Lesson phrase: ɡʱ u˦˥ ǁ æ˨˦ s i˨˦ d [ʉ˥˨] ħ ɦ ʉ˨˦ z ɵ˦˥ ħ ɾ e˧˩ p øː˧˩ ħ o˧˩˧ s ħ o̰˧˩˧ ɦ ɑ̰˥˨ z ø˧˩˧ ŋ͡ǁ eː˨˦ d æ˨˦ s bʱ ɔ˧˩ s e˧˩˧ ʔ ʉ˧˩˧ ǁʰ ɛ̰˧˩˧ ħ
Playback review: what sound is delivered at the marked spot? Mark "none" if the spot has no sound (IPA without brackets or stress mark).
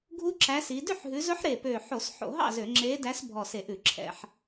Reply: ʉ˥˨